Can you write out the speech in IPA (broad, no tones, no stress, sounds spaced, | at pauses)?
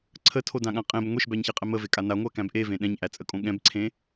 ǀʰ ə tʰ o d ã ɠ ã qʼ ẽ b ŋʷ e ʃ b æ ɲ ç e qʼ ɛ m ə v e kʼ a n a ŋʷ æ k æ̃ b ʔ e v ẽ ɗ ɛ̃ ɲ ʔ æ t͡sʼ ə kʼ õ ɠ ɛ̃ b ǀʰ ẽ